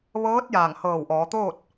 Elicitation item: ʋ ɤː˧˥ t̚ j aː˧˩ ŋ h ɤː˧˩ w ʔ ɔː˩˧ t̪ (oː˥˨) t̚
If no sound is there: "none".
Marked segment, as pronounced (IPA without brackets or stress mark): oː˥˨